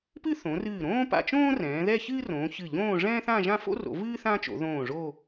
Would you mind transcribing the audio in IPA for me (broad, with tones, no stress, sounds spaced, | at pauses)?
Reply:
p ɨ˥ θ õ˩˧ r ɨː˧˩ ɾ õː˥ p a̰˧ t͡ʃ õː˥ r ɛ̃ː˩˧ ð ɛ˥˧ ç ɨː˥ r õː˩˧ ç ɨ˧˩ ʎ õː˥˧ ʐ ɛ̃ː˥ θ ã˥˧ ʒ ã˥˧ f o̰˥ r o̰˩˧ v ɨː˥ θ ã˥ t͡ʃ o̰˩˧ ð õː˧˩ ʐ o˥˧